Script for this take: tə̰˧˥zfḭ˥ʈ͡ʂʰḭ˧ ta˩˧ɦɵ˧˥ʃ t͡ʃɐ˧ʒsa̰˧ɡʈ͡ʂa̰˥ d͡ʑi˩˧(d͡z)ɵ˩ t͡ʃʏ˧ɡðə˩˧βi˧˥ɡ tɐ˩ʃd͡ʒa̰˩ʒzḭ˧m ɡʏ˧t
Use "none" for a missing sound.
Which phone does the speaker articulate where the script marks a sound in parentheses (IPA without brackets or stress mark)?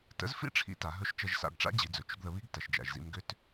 d͡z